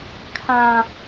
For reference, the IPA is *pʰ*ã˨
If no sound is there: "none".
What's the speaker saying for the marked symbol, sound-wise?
kʰ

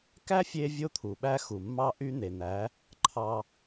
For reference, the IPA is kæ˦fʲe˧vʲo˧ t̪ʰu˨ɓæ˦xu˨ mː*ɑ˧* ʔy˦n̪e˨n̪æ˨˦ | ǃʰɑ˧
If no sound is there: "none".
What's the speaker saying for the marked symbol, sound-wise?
ɑ˧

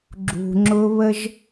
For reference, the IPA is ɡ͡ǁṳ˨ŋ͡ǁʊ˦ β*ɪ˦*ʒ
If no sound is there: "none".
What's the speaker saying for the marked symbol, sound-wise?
ə˦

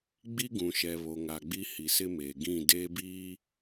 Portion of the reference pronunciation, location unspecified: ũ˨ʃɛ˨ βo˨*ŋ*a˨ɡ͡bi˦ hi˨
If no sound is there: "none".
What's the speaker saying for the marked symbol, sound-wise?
ŋ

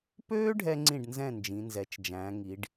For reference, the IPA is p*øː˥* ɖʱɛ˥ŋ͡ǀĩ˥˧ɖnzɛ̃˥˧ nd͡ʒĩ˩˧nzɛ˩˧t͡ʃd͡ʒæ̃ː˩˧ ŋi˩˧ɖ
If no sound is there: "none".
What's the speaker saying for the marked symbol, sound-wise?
øː˥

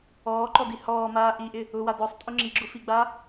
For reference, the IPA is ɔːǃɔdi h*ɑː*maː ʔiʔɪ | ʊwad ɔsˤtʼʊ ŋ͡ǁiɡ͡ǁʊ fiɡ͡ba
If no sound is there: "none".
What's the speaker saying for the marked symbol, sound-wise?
ɔː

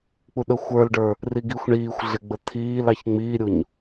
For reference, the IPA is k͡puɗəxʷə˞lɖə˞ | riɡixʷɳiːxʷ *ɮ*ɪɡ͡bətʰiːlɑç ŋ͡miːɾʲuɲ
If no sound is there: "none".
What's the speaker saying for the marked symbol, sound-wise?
ɮ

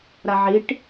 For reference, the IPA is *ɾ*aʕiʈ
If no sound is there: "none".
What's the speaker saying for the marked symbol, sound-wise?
ɾ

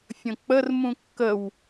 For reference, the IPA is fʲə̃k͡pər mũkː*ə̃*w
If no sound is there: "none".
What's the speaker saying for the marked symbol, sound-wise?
ə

